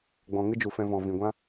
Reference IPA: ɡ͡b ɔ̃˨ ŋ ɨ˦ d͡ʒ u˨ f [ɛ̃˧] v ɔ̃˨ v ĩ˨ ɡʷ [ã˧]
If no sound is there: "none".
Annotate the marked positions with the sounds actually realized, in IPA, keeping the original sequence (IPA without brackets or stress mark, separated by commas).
ɛ̃˧, ã˦